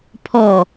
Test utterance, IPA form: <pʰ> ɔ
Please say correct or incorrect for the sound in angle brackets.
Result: correct